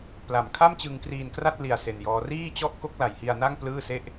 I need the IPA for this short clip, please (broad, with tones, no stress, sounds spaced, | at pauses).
p l a˨˩ m kʰ a˥˩ m t͡ɕ ɯ˧ ŋ k r iː˧ n k r a˥˩ t̚ l i˨˩ a̯ s e˧ n j ɔː˦˥ r iː˥˩ t͡ɕ ɔ˥˩ ʔ k o˦˥ k̚ l a˩˦ j h i˧ a̯ n a˥˩ ŋ p l ɯː˥˩ s e˥˩ ʔ